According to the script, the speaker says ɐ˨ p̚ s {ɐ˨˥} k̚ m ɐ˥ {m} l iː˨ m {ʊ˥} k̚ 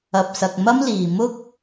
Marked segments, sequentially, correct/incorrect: incorrect, correct, correct

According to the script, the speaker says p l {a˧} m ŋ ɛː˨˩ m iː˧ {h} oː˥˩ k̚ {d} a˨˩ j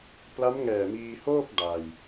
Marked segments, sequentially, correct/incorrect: incorrect, correct, correct

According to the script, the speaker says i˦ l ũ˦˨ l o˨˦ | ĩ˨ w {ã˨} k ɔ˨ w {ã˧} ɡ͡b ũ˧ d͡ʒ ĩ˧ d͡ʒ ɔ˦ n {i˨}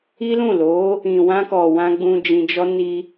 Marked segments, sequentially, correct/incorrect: incorrect, correct, incorrect

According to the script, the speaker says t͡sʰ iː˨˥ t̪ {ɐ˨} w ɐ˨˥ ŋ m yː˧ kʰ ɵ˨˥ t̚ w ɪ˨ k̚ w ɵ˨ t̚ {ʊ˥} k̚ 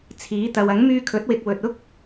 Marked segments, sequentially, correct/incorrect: correct, correct

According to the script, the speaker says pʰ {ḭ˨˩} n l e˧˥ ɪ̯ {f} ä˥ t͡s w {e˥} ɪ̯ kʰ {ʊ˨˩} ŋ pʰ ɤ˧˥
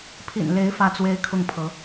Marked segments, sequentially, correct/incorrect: correct, correct, correct, incorrect

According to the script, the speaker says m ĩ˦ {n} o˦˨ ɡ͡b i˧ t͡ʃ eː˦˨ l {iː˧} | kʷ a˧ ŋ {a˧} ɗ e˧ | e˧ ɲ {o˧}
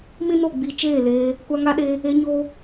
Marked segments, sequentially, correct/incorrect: correct, incorrect, correct, correct

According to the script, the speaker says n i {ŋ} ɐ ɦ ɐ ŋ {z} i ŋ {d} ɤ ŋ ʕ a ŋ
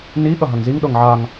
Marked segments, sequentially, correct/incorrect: incorrect, correct, incorrect

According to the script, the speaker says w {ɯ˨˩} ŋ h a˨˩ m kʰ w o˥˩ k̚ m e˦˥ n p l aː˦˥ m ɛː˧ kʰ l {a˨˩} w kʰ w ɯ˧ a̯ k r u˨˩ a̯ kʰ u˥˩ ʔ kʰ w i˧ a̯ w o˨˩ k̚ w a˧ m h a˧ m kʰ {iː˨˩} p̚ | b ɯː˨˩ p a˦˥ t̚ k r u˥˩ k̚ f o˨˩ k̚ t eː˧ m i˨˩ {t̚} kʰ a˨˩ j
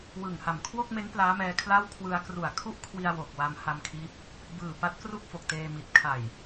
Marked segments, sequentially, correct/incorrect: correct, incorrect, incorrect, correct

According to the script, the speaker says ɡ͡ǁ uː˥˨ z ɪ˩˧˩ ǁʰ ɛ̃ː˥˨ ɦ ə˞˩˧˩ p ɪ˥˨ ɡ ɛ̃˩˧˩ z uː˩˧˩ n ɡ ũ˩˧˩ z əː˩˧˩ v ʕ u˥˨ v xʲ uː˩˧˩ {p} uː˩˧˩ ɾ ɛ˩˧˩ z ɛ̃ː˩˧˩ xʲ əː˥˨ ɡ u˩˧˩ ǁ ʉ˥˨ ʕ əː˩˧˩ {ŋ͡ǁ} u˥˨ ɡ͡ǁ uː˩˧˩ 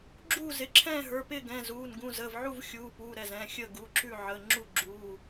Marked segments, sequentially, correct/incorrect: correct, correct

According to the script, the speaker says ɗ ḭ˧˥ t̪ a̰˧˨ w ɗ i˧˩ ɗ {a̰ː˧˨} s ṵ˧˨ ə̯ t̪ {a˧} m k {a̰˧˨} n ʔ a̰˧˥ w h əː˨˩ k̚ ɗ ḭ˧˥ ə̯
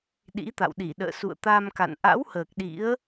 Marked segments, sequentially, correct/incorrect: incorrect, correct, correct

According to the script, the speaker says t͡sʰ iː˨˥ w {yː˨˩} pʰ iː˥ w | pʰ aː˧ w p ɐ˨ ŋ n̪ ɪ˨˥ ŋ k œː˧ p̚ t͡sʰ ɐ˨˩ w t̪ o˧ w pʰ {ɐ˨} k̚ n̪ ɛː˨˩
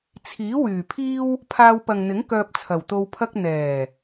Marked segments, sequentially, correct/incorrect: correct, incorrect

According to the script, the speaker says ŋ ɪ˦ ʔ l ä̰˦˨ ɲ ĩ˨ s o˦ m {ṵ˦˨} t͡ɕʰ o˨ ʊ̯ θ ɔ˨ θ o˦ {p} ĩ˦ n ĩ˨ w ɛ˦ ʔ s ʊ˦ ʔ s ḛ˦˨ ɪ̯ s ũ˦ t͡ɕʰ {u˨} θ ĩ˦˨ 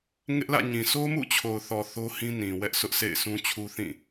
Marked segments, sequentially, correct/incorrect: correct, incorrect, incorrect

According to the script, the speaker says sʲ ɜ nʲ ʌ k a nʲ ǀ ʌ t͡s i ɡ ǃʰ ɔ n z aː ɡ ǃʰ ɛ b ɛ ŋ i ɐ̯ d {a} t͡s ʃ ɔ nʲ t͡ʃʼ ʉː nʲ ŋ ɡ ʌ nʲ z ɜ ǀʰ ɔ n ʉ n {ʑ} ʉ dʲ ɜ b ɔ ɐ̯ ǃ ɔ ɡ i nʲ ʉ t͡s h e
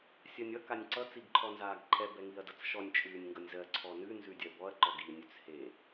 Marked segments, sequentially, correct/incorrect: incorrect, incorrect

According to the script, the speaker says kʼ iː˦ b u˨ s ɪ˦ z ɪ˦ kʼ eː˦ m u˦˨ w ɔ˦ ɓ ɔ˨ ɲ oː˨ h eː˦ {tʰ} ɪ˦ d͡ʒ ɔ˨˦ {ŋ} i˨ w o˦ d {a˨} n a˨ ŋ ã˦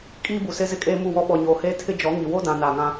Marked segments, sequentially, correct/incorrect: correct, correct, incorrect

